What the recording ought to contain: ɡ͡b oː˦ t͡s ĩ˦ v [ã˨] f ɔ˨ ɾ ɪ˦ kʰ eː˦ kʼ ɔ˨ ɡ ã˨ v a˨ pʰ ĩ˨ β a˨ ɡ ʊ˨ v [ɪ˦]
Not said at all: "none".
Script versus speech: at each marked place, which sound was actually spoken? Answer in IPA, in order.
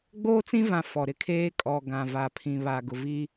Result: ã˨, i˦

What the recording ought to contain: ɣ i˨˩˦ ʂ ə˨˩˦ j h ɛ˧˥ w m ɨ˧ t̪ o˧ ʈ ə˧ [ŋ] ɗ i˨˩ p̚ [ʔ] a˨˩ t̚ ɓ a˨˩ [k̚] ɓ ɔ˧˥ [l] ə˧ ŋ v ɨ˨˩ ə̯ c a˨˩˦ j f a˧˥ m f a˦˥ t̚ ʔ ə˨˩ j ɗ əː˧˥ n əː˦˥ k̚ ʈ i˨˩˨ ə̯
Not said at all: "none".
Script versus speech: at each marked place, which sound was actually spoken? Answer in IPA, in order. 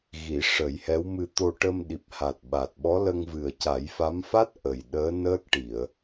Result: m, h, t̚, l

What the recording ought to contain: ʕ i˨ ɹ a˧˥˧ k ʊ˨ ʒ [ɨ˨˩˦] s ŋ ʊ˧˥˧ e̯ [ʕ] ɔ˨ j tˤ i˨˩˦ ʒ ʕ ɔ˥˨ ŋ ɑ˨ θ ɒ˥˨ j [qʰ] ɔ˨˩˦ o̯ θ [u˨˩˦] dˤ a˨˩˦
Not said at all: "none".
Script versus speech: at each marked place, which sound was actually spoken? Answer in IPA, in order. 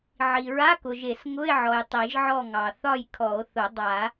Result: e˨˩˦, ʕ, kʰ, ʊ˨˩˦

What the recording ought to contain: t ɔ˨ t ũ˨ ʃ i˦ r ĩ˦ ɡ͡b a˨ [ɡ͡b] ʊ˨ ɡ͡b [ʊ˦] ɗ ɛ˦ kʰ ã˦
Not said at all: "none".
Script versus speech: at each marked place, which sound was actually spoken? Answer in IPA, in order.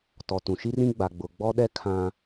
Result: ɡ͡b, ɔ˦

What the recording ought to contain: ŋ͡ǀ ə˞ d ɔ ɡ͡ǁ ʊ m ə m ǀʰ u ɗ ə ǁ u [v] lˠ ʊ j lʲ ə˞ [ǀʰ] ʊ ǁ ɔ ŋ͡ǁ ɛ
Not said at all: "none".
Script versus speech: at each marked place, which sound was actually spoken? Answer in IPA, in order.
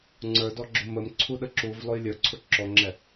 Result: v, ǀʰ

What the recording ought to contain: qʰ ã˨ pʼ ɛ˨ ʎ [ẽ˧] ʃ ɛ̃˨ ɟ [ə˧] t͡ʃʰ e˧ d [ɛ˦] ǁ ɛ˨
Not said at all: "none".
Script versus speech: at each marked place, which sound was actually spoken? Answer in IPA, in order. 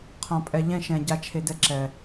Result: ɛ̃˧, a˧, ɛ˦

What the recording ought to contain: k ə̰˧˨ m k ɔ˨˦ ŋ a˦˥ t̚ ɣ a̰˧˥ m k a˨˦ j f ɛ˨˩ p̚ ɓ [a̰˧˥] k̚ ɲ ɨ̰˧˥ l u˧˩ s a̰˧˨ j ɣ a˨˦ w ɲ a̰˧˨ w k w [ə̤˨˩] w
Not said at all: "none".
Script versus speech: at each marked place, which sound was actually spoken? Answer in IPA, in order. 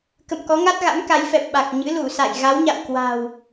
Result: a˨˩, a̤˨˩

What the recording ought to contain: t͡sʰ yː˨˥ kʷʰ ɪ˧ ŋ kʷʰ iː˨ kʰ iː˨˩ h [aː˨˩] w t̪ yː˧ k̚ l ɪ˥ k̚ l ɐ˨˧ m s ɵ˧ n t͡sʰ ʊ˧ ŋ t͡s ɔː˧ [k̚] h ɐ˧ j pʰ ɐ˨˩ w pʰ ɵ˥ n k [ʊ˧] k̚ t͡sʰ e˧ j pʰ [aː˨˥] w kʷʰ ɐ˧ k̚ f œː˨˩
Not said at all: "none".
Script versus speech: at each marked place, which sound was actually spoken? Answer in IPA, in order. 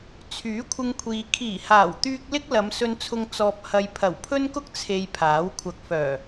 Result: aː˨˩, p̚, ʊ˥, aː˨˥

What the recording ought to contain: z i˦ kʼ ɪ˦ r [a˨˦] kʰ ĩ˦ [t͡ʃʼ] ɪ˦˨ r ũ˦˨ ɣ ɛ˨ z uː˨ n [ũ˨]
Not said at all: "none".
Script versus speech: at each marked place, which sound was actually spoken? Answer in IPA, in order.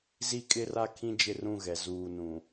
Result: a˦, d͡ʒ, ũ˨

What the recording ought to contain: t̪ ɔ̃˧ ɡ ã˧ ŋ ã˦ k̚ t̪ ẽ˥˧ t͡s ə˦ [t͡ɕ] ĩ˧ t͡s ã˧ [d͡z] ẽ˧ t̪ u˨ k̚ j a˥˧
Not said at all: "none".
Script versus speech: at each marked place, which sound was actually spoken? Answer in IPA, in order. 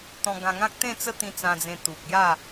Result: t̪, d͡z

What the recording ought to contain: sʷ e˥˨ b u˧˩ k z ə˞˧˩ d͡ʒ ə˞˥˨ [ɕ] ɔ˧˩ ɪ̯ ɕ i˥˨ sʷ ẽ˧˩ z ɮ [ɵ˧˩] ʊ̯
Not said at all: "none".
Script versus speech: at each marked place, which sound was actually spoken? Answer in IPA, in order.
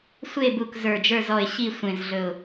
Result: z, ɵ˧˩

